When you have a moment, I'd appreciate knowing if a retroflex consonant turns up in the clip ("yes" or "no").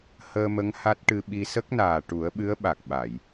yes